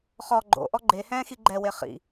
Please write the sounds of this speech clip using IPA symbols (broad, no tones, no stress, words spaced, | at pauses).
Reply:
χɔ ɡ͡ǃo̰ʔɔ ɡ͡ǃehɛ̃ː xiɡ͡ǃɛwe χḭ